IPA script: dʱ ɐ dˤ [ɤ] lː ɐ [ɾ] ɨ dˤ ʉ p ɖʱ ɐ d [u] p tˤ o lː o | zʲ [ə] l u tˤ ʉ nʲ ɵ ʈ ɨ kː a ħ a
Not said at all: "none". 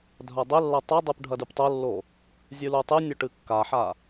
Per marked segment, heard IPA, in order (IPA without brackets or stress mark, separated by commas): ɵ, tˤ, ʉ, ʉ